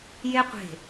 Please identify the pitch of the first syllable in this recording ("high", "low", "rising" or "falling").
high